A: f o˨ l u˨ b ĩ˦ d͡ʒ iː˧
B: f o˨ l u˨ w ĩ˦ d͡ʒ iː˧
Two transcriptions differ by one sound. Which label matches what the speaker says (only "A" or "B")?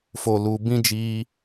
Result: A